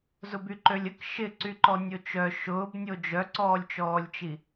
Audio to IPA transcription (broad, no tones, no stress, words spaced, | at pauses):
zʊbyǃølʲək ʃɪǀyǃɔ nʲot͡ʃœ ʃʊːbnʲo d͡ʒœǀɔːlʲt͡ʃɔːlʲt͡ʃi